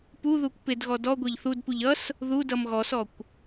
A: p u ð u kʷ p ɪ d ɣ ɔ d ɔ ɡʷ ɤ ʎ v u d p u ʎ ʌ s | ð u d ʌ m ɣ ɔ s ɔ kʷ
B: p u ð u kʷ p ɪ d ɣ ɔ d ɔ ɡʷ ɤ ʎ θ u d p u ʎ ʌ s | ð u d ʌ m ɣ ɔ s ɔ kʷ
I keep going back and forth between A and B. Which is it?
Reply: B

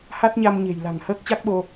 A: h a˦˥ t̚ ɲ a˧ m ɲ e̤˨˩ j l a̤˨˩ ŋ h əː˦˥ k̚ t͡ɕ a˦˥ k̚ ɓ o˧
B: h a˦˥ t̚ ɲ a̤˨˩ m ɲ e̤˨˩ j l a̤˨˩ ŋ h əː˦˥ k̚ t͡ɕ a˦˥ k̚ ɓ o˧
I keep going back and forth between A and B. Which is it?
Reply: A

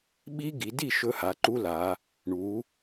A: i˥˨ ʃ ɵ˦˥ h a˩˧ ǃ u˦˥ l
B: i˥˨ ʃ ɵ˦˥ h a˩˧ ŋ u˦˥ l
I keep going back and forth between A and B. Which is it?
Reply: A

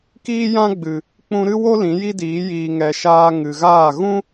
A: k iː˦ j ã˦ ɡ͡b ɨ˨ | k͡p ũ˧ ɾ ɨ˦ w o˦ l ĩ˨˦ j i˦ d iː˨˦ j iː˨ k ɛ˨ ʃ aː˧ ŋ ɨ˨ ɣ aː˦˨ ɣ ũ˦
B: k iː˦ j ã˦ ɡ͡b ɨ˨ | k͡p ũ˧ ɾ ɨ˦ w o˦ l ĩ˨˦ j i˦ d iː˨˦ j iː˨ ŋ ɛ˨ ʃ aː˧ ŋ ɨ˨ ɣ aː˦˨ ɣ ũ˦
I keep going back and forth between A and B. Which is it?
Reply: B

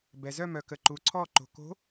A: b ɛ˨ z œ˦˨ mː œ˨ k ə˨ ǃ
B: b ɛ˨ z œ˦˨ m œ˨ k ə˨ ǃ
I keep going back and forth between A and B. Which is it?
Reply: B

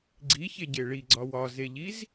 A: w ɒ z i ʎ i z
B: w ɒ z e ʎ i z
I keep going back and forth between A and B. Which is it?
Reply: B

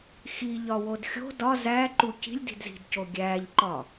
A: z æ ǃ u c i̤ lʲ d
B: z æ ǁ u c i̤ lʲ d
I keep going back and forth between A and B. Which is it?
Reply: A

